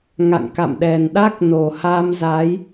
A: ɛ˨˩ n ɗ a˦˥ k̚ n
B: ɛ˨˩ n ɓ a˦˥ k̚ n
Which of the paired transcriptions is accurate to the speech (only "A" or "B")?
A